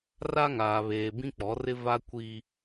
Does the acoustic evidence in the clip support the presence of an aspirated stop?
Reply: no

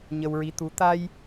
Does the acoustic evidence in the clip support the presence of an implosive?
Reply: no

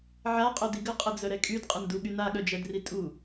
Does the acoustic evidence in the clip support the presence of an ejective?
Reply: yes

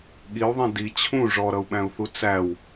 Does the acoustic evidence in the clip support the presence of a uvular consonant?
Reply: no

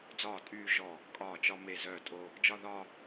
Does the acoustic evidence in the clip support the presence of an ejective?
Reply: yes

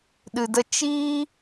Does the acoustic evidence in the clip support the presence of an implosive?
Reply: yes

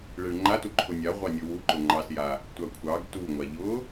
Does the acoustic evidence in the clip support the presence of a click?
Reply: yes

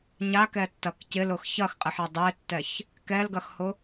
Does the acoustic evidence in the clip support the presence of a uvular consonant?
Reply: yes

